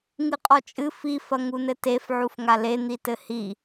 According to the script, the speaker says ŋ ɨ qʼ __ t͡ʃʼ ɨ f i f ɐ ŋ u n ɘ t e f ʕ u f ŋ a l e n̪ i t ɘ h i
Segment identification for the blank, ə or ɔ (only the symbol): ɔ